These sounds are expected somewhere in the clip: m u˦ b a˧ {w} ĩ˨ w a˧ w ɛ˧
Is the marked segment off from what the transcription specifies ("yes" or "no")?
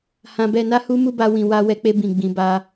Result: no